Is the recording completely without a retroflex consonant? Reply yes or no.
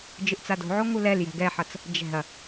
yes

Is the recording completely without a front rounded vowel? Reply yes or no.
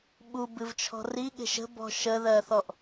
yes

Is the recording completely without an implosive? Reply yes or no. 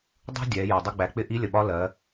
no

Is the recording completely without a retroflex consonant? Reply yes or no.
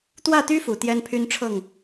no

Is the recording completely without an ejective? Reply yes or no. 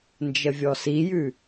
yes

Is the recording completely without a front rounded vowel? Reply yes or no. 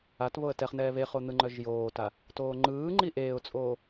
no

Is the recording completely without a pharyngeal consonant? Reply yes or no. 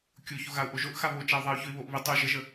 yes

